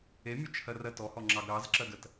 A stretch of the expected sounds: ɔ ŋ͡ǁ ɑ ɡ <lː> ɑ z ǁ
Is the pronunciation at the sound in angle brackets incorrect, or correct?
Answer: incorrect